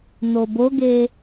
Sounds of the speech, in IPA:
n o b o ɡ e

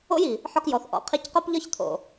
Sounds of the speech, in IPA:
o̰˦ j i˨ | ħ ɒ˧ k j ɔ˨ θ ʔ ɔ̰˨ qʰ i˧ c q o˦ p ʎ ɒ˦ ç t̪ʰ o̰˨

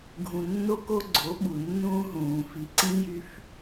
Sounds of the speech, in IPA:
ɡʱ ũ˨ nː o˦ k o˦ ɡ͡ǀ o˨˦ ɓ u˨ nː ũː˦ ɦ ũː˨ f i˨ ǀ ĩ˦ j y˦ f

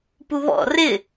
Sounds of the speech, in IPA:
p u β ɔ̰ r ɪ

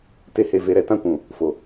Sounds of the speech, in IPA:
t e˦ h e˧ v e˧ ɾ ɛ˧ t ã˧ kʷ ũ˨ | f o˨

